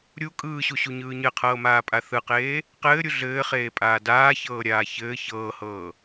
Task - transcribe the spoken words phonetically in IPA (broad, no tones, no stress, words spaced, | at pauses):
ɾʲu kʼɯːɕuɕuɲɯː ɲɘqʰɤːmaːpʼa θɯqeː | qɘːɾʲu ɮɘːχeːpʼaː daːçɤːɾʲaː çɘː çɤːhɤː